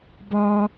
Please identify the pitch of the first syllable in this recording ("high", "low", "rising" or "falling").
high